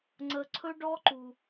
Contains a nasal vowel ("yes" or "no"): no